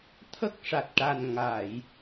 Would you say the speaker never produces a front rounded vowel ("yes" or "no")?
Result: yes